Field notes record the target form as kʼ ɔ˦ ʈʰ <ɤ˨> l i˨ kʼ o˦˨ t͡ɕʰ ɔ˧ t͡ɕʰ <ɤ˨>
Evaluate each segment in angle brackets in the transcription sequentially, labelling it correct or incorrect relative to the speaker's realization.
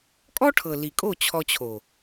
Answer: correct, incorrect: o˨

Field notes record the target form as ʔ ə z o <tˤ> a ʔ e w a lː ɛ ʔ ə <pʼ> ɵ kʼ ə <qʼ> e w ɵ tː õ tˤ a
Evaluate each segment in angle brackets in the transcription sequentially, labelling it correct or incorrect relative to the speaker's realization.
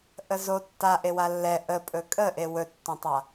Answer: incorrect: tː, correct, incorrect: ʔ

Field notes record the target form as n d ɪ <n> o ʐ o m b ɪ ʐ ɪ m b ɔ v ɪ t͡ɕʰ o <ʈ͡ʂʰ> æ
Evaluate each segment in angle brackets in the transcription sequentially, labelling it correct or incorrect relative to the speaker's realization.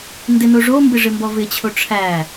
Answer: correct, correct

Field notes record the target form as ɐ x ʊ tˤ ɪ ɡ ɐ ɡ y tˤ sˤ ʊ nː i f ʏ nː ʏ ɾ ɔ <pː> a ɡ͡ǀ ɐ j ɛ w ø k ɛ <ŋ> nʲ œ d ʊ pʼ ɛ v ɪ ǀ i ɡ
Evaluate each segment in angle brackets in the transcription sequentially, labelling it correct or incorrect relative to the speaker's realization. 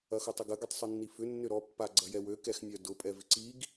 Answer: correct, incorrect: x

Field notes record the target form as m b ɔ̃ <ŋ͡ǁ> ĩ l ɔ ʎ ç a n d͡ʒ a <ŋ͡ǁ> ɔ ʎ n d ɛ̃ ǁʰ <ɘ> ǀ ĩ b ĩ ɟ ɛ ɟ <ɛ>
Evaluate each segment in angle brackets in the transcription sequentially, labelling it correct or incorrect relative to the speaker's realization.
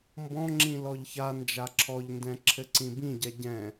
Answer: correct, incorrect: ǁʰ, correct, incorrect: ɛ̃

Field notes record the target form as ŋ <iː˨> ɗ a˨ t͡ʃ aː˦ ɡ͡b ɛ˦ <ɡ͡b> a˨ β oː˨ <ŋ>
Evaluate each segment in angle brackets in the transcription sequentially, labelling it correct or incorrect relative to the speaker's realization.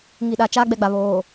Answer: incorrect: i˨, correct, incorrect: none

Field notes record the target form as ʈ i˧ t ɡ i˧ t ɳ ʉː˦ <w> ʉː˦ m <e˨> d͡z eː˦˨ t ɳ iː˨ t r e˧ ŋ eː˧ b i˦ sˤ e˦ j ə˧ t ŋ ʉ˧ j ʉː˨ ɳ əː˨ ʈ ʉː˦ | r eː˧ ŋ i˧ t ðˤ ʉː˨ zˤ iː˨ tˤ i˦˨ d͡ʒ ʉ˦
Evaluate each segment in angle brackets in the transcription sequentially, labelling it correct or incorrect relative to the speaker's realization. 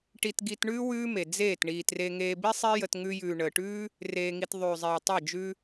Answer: correct, correct

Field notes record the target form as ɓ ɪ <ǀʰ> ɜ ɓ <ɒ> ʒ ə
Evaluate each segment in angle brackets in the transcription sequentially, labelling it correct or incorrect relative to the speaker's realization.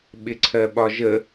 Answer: correct, correct

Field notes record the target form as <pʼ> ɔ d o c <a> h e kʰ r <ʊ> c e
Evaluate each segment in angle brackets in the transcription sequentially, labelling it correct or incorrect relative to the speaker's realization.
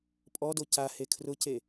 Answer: correct, correct, correct

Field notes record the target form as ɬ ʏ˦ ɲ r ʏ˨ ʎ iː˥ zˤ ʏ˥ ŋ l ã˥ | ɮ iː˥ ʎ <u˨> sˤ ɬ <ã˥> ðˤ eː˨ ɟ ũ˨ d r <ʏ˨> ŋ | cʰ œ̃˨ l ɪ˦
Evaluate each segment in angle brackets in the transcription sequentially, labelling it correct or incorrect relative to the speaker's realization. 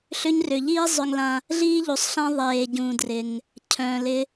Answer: correct, correct, incorrect: ɪ˨

